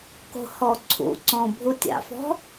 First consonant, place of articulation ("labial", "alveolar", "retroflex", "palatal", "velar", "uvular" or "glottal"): velar